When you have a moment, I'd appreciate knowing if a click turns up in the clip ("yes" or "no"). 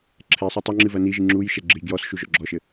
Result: yes